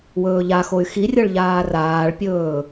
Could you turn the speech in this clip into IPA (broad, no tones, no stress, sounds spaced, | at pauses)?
w ɵː ʎ a x o y̯ x i rʲ ɤ ɭ ʎ aː r aː ɭ pʲ ɵː